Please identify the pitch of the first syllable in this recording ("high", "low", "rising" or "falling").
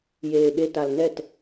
low